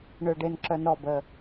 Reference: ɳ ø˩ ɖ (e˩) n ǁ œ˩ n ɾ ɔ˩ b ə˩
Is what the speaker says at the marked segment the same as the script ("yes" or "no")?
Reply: yes